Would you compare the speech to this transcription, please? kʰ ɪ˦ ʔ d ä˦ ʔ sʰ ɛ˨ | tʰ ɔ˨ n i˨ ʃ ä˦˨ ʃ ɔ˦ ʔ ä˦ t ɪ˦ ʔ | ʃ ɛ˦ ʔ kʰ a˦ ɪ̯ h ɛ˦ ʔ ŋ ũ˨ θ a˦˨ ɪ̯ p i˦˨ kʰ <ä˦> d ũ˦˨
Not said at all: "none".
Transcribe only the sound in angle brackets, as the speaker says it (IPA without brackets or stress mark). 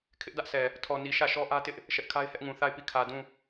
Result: ä˨